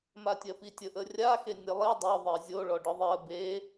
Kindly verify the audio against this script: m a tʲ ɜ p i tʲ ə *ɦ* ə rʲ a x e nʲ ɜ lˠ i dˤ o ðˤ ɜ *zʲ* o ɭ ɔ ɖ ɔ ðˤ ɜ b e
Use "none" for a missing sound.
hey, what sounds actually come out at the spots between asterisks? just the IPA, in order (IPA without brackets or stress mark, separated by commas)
ʔ, zʲ